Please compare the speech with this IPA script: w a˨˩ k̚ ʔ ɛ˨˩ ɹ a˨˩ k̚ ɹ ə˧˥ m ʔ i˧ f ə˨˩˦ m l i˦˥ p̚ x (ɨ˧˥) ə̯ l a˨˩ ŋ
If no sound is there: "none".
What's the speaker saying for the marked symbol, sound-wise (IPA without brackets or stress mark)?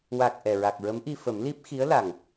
i˧˥